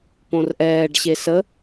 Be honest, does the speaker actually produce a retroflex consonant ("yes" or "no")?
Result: yes